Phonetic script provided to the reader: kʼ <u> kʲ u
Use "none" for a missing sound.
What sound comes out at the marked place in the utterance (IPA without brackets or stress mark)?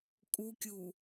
u